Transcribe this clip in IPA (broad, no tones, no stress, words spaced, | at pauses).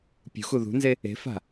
pʲṳxu ðṳnze | e̤fa̤